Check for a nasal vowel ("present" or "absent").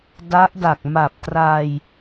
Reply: absent